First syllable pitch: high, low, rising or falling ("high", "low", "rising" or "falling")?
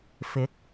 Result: rising